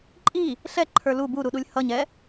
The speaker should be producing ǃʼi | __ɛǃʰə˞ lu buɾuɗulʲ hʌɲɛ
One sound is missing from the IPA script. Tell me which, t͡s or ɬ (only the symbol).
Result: ɬ